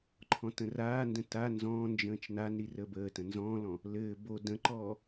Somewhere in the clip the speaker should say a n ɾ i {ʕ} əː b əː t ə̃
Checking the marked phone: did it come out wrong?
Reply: yes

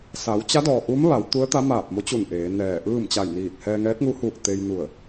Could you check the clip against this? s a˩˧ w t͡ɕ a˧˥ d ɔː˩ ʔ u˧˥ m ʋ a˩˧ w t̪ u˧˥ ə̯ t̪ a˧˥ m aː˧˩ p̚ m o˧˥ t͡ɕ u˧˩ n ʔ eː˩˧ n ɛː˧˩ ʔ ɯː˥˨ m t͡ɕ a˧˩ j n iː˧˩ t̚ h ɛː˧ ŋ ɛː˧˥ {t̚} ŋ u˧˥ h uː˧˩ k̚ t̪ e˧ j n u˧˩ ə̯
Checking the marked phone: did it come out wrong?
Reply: no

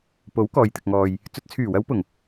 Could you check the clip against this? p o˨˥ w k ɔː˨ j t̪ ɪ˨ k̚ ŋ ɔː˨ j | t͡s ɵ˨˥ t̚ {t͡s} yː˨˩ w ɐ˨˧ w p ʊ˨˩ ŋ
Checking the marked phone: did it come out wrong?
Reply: yes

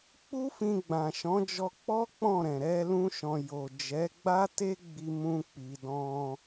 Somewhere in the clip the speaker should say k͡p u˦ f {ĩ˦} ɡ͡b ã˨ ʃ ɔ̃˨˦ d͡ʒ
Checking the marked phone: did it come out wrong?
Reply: yes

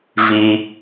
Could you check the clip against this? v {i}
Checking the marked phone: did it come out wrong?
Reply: no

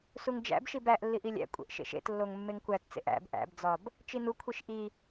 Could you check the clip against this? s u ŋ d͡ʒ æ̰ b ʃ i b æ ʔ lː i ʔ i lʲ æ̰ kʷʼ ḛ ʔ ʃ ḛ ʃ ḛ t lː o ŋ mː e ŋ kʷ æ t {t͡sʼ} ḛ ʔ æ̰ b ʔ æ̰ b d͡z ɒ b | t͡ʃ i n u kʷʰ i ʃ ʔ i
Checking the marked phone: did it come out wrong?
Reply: yes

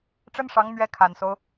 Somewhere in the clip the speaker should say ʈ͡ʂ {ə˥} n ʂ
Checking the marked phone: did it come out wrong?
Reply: no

